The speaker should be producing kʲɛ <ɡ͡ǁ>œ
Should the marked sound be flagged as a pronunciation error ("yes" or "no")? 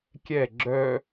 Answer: no